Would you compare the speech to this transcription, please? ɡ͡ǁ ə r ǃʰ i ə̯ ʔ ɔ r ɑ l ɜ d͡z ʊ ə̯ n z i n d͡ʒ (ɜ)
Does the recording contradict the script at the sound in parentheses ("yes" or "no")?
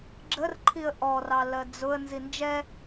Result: yes